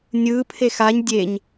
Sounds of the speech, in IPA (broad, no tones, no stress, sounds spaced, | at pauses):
nʲ ɯ pʰ e x a ɲ dʲ e ɲ